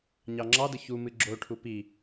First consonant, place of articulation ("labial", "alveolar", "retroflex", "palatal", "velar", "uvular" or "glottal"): palatal